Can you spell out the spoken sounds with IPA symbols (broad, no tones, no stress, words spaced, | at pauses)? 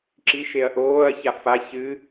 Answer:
ǁiʃeɐ̯ ʔoːɐ̯ça fa çɨ